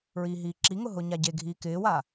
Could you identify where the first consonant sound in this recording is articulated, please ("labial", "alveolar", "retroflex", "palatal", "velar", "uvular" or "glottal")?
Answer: alveolar